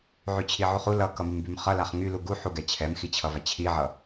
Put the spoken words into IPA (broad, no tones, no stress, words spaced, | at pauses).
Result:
ʕyt͡ɕʰiʕuχu lʌkʌmymbym χʌlaχ ŋylu ɡuħuɡɛ t͡ɕʰɛmxit͡ɕʰʌva t͡ɕʰiʕʌ